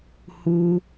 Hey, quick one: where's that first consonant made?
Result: throat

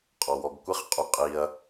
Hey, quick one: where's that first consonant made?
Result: uvula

